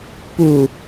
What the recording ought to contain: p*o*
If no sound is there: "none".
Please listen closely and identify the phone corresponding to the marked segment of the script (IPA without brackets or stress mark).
u